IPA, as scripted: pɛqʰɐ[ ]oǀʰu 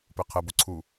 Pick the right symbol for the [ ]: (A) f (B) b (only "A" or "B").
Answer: B